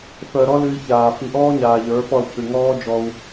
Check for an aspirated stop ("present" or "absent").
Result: present